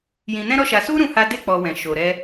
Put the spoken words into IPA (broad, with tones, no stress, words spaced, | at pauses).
jĩ˧nɛ̃˦ɾɔ˦ʃa˧ su˦ ɾũ˦ha˦ de˦ k͡pɔ˧wɛ̃˨ ʃo˨ɾɛ˧